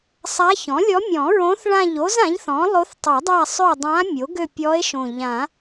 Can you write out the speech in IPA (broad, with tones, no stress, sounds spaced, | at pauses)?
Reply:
sˤ a˧˥ ç ɔ̃˩˥ lʲ ɔ˧˥ mʲ ɔ̃˨˩˦ ɹ õ˧˥ θ ɭ ã˦˨ ʎ o˧˥ z ã˩˥ ʎ θ ɔ̃˩˥ lˠ o˧˥ θ tˤ ø˨˩˦ dˤ a˦˨ sˤ ø˦˨ dˤ ã˧˥ mʲ o˩˥ ɡ ø˦˨ pʲ ɔ˧˥ e̯ ʃ õ˨˩ ʎ ã˨˩˦